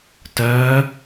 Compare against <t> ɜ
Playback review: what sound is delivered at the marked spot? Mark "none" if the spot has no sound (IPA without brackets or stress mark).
t